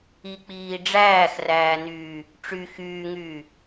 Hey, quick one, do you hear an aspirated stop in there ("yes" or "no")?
no